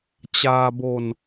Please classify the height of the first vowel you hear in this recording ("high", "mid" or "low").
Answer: low